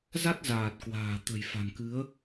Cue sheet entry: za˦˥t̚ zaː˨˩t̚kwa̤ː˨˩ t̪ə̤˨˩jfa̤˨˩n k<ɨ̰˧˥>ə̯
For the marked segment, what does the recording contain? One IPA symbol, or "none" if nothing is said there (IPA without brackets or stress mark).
ɨ˨˦